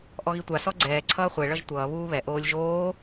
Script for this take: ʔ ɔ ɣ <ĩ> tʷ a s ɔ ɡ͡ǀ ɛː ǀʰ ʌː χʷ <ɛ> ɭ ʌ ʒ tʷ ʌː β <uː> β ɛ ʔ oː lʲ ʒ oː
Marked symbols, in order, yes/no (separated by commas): no, yes, yes